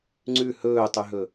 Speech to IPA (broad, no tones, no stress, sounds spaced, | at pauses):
ŋ͡ǀ ʉ h ɵː tˤ ʉ ɦ ɵ